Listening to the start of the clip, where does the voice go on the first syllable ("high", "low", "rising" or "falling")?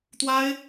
high